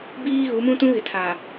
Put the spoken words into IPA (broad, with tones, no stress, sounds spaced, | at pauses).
b iː˦ ɣ u˨˦ m ũ˦ t ũ˦ ɣ ɪ˨ tʰ aː˨